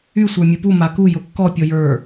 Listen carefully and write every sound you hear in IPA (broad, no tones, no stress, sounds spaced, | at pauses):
y sʷ ə˞ mʲ u p u m a k u j ʊ kː ɔ pʲ ɔ j ə˞